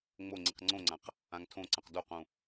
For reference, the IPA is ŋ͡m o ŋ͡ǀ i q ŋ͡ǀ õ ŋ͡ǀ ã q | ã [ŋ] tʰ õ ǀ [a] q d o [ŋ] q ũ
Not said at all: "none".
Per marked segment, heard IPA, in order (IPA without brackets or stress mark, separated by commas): ŋ, ã, none